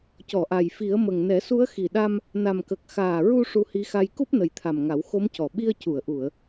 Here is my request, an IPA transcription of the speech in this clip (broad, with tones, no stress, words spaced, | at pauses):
cɔ˨˩˨ʔa˨˩jfi˨˩˦ə̯mə˨˩ŋ nɛ˨˩˦su˧˥ə̯xi˨˩ɗa˧m | na˨˩mkə˨˩k̚ xaː˨˩ɹu˧ ʂu˧hi˧˥xa˧j ku˦˥p̚nə˨˩jt̪ʰa˨˩m ŋa˨˩˦wxo˧˥mcɔ˨˩ ɓi˧ə̯cu˨˩˨ə̯ʔu˨˩˨ə̯